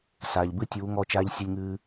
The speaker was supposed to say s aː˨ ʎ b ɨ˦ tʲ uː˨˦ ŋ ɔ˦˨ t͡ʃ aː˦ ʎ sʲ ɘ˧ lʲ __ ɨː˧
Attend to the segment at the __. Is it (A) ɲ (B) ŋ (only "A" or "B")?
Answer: B